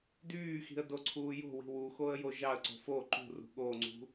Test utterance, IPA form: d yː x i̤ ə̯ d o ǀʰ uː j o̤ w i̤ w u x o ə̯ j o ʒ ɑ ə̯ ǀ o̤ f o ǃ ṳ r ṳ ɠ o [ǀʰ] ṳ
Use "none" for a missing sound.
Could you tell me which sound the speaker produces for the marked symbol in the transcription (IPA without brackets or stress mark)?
ŋ͡ǀ